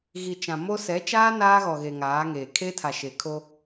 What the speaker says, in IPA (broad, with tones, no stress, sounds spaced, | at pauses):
ɣ i˨ t͡ʃ ã˨ m o˦ s ɛ˨˦ t͡ʃ aː˦ n aː˦ ɣ ɔ˨ ɣ e˨ ŋ aː˨˦ ŋ eː˨ kʰ e˦ tʰ a˨ ʃ e˨ kʰ o˦